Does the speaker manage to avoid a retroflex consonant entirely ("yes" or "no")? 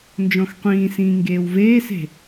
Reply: yes